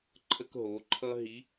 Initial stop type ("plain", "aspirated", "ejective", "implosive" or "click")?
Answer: click